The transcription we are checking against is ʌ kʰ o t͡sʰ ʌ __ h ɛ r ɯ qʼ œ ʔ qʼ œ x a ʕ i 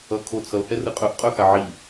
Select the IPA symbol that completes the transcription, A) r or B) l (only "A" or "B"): B